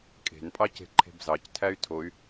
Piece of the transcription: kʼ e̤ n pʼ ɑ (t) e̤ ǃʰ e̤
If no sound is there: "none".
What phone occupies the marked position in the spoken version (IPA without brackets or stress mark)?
c